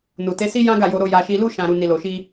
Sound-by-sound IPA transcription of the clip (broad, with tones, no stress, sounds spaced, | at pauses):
n u˨ t e˨˦ s i˦ j ã˦ ɡ a˦˨ j o˧ ɾ o˧ j a˧ ʃ i˧ l u˧ ʃ ã˨ ɾ u˨ n i˨ l o˨ ʃ i˧